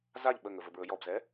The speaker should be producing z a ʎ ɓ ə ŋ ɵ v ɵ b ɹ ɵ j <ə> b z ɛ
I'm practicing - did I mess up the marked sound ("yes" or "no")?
yes